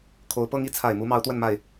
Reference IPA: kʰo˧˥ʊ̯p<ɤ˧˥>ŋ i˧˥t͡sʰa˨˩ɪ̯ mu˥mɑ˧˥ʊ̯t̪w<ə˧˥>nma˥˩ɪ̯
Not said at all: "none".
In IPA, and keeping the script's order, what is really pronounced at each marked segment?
ɤ˥, ə˥˧

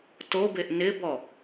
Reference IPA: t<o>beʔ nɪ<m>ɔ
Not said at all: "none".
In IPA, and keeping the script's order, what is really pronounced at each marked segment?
o, b

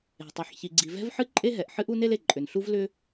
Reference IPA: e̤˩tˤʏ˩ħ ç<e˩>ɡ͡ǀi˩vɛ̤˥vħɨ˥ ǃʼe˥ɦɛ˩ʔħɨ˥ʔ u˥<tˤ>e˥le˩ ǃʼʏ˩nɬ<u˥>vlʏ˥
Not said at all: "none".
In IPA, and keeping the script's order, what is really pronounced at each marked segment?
i˩, n, u˥

